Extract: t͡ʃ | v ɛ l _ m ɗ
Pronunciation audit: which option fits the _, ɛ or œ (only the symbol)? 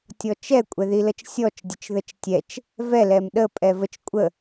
ɛ